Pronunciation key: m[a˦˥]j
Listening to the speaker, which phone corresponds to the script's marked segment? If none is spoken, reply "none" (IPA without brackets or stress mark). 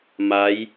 a˦˥